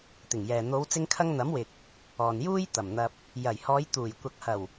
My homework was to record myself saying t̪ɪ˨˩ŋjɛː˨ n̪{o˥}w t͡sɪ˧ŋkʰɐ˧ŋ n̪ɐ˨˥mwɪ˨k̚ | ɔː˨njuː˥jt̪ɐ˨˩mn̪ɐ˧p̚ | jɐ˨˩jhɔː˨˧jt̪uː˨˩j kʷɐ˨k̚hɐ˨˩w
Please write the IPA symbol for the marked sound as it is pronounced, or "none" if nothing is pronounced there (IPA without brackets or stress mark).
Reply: o˨˧